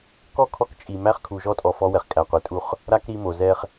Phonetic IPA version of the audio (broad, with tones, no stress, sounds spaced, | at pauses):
k ɔ˦˨ kʰ ɔ˦ k t͡ʃʼ i˨ m æ˦ χ kʰ u˨ ʒ ɔ˦ tʼ ɔ˨ f ɔ˦ w ɛ˨ χ kʼ æ˨ qʷ ɛ˨ tʼ u˦˨ χ | ɾ a˦ k ɾ i˦ m o˨ z ɛ˦ χ